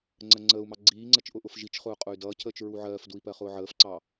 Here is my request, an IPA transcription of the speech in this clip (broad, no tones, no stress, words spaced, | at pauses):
ŋ͡ǀɜŋ͡ǀəːu̯mɑ ɡ͡ǀiːŋ͡ǀɜt͡ʃ ʔʊʔʊfʒit͡ʃχʊː qʼʊy̯dʌːcʰəːt͡ʃ ɹuʕɜːfdui̯ pɜχʊːʕəːfǀɑ